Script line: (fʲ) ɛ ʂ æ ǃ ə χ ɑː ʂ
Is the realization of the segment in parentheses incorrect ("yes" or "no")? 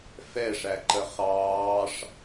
yes